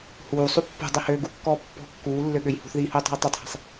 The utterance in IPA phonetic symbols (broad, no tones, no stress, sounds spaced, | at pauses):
h uː sˤ u pː ṳ dˤ e h øː ɡ u kː ɔː pː ɔ̤ kː uː lː ø ɠ ø j h ṳ θ ð iː h uː tˤ ɔ̤ j tˤ ø tˤ h e̤ sˤ